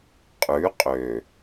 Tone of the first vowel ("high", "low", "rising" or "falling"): rising